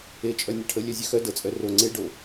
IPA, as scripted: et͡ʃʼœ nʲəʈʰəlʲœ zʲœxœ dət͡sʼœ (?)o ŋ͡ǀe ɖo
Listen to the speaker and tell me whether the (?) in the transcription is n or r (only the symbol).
r